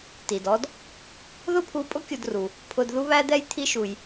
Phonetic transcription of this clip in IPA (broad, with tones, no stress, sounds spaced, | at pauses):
t i˩ d ɔ˧ d | ð ʊ˥ pʰ u˧ pʼ ʊ˥ kʲ ʊ˧ d r u˩ | pʰ ʊ˧ d ð u˥ β æ˥ d̪ ɛ˥ j t̪ʰ i˧ ʃ u˩ j